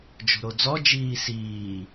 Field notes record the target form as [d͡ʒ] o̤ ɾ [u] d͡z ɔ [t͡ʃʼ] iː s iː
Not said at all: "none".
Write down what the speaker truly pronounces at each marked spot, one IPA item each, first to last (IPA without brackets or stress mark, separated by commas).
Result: d͡ʒ, o, d͡ʒ